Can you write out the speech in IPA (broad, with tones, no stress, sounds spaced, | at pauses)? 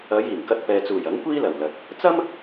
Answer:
ɐ˨˧ j iː˨˩ ŋ k ɐ˧ t̚ p ɛː˨ t͡s uː˨˩ j ɐ˨˥ ŋ kʷ iː˥ l ɐ˨˩ w l ɐ˨ t̚ | t͡s ɐ˥ m